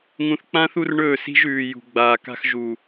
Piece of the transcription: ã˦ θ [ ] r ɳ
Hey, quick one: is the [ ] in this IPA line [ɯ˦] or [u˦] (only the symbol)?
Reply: u˦